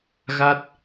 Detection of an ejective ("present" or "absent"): absent